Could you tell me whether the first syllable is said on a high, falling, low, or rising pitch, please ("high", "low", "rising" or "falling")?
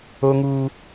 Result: high